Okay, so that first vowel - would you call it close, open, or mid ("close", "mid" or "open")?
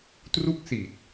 close